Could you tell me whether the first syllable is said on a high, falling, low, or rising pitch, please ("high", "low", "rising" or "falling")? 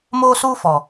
high